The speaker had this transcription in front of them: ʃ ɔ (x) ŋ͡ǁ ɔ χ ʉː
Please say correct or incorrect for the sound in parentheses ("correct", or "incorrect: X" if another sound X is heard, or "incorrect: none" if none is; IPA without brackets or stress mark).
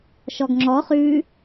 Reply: incorrect: ɡ